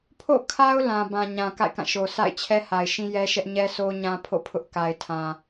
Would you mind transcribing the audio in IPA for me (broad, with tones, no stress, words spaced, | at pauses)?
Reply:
pʰo̰˦˨kʰa˦ʊ̯ lã˨bã˨ ɲã˨ka̰˦˨ɪ̯kã˦˨ ʃo˨sʰa̰˦˨ɪ̯ t͡ɕʰɛ˦ha˨ɪ̯ʃĩ˦ jɛ˦ʃɛ˦ʔ ɲɛ˦sʰo˦ ɲã˦pʰo̰˦˨pʰʊ˦ʔ ka˨ɪ̯tʰã˨